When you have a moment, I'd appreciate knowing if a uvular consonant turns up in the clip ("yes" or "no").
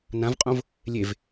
yes